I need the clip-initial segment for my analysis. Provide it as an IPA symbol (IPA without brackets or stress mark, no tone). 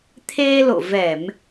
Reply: t̪ʰ